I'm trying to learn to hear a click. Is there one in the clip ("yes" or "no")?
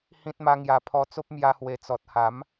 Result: no